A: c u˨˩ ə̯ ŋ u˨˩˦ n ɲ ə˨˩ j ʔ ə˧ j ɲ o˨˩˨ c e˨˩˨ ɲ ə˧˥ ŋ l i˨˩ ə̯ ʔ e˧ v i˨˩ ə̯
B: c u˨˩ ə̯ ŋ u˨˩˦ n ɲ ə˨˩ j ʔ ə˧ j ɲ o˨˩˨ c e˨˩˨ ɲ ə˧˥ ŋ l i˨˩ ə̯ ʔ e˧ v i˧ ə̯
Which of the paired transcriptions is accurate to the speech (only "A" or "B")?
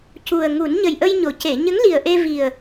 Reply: A